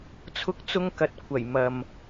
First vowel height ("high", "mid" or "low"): high